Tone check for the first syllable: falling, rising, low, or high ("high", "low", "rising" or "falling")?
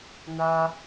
high